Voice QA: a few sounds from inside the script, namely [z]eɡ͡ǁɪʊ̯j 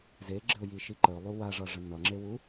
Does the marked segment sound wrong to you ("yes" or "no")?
no